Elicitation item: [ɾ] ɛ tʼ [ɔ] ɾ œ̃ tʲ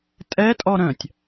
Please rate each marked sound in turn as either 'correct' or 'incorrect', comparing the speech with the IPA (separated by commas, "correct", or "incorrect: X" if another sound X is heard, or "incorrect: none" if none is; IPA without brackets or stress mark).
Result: incorrect: tʼ, correct